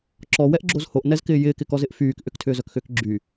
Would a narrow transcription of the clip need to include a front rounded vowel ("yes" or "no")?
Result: yes